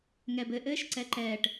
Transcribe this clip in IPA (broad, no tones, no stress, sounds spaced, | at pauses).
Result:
ŋ ɛ b ɘ ʔ ɘː ʃ ǀ ɛ ǃ ɛː ʈ